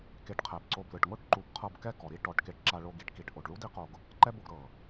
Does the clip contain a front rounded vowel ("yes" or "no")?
no